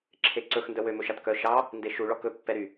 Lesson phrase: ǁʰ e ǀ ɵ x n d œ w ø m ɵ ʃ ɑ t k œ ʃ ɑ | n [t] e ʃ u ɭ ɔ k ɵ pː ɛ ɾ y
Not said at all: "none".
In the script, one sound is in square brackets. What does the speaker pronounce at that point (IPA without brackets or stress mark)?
d